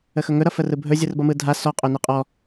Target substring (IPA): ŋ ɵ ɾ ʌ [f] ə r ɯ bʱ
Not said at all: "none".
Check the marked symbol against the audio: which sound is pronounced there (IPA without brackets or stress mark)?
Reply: f